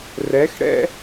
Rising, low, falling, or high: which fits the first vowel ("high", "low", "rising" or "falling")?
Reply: rising